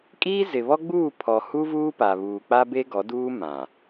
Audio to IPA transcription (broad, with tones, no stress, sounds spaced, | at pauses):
kʼ iː˦ z ɪ˨ β ɔ˦ ɡ͡b uː˦˨ pʰ ɔ˨ h u˦ v uː˦ p a˨ β uː˨ k͡p a˦ b e˦ ɡ ɔ˨˦ d uː˦ m ã˨